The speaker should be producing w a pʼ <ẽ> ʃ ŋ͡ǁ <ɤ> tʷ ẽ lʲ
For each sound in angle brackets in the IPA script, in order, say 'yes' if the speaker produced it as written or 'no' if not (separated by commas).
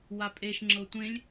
no, yes